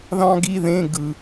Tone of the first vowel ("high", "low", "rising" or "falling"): high